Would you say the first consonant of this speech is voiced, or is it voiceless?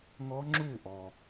voiced